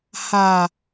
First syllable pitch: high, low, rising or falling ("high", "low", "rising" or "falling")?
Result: low